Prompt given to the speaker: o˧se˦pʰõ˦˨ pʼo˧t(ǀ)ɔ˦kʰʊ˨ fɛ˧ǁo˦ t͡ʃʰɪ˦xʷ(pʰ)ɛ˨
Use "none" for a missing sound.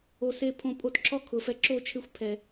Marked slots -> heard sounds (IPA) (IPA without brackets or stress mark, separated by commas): ǁ, pʰ